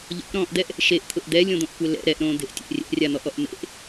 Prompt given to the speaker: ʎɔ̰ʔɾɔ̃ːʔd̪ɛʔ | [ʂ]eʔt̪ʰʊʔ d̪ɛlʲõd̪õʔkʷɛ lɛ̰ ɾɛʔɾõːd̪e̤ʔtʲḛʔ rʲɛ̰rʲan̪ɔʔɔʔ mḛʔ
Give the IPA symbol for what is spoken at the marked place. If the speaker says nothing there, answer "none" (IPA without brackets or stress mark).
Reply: ʃ